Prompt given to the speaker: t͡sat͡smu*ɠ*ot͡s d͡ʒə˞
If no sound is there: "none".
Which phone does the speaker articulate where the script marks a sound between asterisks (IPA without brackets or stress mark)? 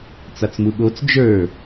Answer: ɠ